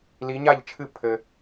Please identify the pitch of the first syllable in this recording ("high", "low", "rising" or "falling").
rising